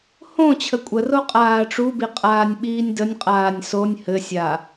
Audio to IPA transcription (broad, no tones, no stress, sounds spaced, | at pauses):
h õ t͡ɕʰ ə kʷʼ ə r o qʼ aː ʈ͡ʂ u b i qʼ aː nʲ ɓ iː nʲ d ə nʲ qʼ aː nʲ s o nʲ h ɘ sʲ a